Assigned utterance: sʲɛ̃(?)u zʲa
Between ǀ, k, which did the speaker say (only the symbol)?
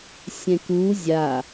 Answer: k